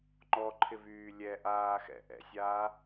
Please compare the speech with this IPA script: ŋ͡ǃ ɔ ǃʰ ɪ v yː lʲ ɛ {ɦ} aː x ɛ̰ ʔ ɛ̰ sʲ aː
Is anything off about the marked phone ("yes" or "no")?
yes